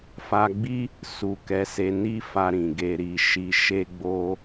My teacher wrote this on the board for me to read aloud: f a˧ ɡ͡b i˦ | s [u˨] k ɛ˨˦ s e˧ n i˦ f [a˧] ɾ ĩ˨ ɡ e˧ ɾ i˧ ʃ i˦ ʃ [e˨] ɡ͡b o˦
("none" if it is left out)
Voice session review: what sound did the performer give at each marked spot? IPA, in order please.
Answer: u˨, a˧, e˦

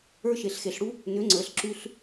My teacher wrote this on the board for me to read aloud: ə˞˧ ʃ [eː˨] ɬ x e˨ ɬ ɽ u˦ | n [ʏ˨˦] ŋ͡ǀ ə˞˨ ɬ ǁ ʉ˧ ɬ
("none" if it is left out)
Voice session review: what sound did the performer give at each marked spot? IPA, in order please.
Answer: e˨, ʏ˨˦

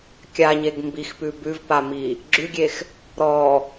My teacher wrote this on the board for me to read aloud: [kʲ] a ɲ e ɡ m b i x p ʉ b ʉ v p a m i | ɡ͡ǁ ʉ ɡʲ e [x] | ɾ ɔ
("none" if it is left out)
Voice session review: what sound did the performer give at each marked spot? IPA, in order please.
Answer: kʲ, x

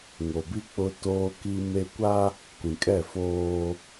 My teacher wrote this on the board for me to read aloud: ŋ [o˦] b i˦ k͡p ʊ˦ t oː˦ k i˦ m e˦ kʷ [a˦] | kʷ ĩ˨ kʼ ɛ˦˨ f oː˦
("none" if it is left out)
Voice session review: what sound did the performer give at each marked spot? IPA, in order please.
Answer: o˨, a˦

